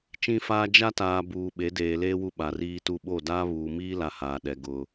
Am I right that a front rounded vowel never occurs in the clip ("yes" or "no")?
yes